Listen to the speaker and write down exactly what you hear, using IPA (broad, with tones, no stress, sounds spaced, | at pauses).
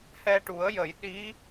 h ɛ˧ ʈ u˨˩˦ ə̯ j ə˨˩˦ j ɗ i˧˥